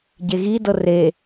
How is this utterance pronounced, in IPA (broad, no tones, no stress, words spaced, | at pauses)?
ɟeɣidɤ re